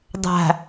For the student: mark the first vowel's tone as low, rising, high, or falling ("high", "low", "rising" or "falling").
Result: low